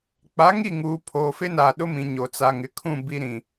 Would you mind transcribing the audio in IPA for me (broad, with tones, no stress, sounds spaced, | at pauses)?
k͡p a˨˦ ŋ i˦˨ ŋ uː˨ pʰ oː˨ f ɪ˦ n aː˨ ɗ ʊ˦ m ĩ˨ ɲ o˨ t͡s a˨ ŋ ɪ˨ kʰ ũ˦˨ b i˨ ɾ ĩ˨